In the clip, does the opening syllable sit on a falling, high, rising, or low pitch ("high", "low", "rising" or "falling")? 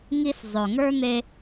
high